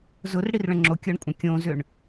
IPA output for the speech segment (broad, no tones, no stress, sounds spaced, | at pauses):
z ʊ r ɽ i r ɭ ə̃ ŋ͡ǁ o kʲ ɤ ɳ kʷʼ ɐ̃ kʲ õ z ʏ ɳ